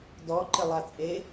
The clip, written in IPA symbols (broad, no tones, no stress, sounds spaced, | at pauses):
d ɔ ǃ ɪ lˠ a t͡sʼ e